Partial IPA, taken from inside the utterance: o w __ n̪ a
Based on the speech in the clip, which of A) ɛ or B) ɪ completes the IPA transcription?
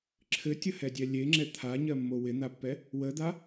B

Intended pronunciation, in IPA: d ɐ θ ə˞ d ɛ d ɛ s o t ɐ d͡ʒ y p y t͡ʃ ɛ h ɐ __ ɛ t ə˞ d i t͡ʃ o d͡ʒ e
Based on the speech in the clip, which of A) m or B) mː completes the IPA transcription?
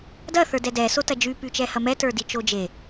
A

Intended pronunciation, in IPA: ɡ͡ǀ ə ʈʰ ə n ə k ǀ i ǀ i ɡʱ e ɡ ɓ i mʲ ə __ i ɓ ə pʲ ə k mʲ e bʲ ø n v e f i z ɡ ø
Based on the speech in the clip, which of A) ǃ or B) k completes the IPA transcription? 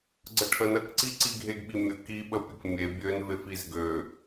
B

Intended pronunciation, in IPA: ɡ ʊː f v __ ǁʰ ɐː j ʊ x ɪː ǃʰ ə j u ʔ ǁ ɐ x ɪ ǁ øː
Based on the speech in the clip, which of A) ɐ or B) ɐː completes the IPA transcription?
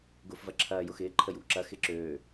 A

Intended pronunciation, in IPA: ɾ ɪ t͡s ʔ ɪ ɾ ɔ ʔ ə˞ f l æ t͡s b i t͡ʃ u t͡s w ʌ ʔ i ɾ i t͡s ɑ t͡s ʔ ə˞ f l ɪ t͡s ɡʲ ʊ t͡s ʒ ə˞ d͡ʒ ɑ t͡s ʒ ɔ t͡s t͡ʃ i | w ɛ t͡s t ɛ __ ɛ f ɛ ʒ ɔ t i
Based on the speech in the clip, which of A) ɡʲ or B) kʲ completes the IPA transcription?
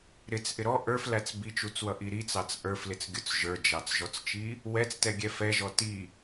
A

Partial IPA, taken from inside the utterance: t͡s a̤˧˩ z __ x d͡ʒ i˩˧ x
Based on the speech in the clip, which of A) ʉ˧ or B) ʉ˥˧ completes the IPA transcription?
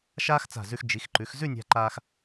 A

